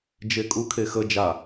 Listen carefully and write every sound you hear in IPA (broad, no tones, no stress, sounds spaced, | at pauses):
d͡ʒ e kʼ u kʰ e x ə d͡ʒ a